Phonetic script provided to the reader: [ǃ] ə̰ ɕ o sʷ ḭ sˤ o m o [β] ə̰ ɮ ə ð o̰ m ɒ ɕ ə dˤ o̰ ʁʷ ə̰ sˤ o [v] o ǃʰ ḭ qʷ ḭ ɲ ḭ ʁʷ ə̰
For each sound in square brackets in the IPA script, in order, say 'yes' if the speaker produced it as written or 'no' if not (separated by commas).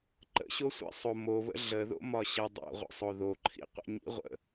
yes, yes, no